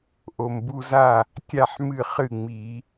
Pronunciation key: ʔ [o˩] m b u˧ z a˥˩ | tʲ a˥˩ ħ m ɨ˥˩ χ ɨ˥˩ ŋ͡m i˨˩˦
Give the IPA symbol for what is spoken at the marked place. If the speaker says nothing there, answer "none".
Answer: o˩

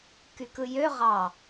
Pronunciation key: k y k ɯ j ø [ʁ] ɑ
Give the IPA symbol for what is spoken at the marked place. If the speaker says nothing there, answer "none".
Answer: ʁ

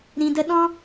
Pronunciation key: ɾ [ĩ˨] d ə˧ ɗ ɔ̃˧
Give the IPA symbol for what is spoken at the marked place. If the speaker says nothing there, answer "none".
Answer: ĩ˨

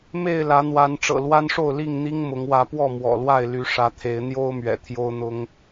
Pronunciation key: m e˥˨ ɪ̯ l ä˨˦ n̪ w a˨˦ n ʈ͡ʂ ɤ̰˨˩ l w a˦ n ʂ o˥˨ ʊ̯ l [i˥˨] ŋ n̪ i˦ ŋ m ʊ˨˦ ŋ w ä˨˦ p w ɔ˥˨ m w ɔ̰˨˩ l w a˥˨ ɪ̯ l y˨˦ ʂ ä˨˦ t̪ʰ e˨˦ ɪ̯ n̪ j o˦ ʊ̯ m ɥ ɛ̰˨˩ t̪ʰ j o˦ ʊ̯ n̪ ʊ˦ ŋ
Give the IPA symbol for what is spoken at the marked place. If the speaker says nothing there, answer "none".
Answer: i˥˨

